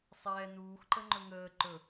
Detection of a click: present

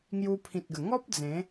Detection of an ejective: absent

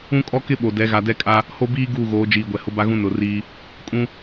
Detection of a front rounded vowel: absent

